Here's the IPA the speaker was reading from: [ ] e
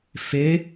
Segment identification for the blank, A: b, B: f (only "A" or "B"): B